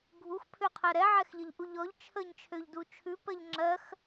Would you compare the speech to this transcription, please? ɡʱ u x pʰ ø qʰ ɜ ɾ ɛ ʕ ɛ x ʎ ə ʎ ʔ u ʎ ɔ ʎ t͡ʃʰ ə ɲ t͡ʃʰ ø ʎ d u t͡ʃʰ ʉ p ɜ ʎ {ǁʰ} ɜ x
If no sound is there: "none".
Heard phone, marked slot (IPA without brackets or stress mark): ŋ͡ǁ